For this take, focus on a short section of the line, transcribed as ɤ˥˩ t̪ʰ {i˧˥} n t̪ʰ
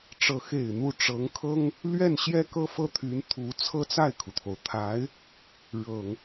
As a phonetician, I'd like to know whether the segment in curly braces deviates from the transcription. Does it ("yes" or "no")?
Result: yes